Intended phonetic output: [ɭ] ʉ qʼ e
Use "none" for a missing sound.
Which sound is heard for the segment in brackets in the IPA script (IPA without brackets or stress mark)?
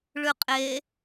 ɭ